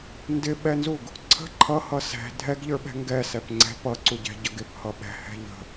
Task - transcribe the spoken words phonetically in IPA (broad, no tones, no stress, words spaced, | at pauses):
ndɪɓɛnzuɡ | ǀʰə̤ ǃʰʌhʌ sɛ̤ dʱɛɡʎə˞ɓɛ̤ ŋɡɛsɛp ŋ͡ǀɛ̤ pʌǀuɟɛ̤ɟʌɡ ɪphʌ ɓɛ̤hɛ̤ ʎə̤